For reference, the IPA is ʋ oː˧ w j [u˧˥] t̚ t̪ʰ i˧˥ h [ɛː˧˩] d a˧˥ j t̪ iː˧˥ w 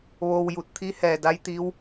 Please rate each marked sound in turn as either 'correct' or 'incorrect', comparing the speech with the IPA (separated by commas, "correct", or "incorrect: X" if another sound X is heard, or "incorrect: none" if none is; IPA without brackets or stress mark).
incorrect: u˧˩, correct